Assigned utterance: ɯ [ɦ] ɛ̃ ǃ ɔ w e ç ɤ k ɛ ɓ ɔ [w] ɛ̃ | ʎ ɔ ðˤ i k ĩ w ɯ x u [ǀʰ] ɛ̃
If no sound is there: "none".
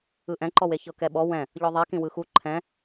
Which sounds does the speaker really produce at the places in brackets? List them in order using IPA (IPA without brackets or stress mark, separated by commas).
ʔ, w, ǃʰ